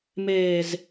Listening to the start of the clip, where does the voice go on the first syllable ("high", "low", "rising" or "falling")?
low